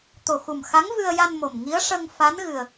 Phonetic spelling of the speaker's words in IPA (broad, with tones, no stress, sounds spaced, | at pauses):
t̪ o˨˩ x u˨˩ m x a˧˥ ŋ v ɨ˧ ə̯ j a˧ n m o˨˩ m ŋ i˧˥ ə̯ ʂ ə˧ ŋ f a˧˥ n ɣ ɨ˨˩ ə̯